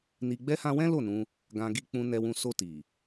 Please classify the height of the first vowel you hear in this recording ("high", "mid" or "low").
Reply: high